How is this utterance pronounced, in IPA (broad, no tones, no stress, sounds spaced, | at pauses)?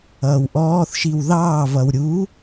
ʌː w ʔ ɔː θ ʃ i w ð ɑː v ʌ w ɾʲ u